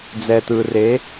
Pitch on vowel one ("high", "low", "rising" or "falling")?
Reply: low